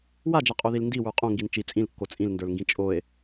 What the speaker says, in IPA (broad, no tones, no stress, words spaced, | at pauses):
wad͡ʒaqʼoðil ndiwə˞ qʼõŋɡin t͡ʃi t͡sʼĩlkːo t͡sʼĩlndə˞lŋɡĩ t͡ʃʼoe̯